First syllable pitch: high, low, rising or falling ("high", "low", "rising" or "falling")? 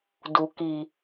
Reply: low